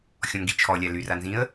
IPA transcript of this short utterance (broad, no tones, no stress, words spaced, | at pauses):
xʲɔ̃ŋɡit͡ʃʰɔlʲa lyranzĩə̯